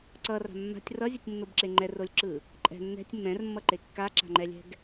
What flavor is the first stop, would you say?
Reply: click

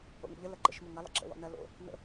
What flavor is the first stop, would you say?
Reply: click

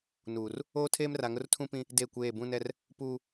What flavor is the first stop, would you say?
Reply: aspirated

